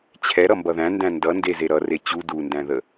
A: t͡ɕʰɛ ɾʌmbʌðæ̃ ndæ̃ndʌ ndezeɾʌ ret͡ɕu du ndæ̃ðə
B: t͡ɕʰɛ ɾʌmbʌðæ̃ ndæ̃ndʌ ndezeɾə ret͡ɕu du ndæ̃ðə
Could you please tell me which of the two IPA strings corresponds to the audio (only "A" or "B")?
A